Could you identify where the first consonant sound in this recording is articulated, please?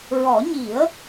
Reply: alveolar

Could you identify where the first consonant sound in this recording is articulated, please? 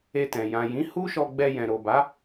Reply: alveolar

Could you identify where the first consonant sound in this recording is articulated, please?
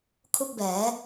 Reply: velar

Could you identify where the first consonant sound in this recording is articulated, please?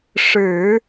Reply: retroflex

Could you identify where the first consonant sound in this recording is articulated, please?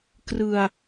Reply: velar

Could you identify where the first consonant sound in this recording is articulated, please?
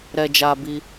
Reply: alveolar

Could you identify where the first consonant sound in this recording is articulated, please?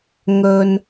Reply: velar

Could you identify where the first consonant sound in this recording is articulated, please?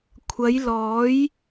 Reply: velar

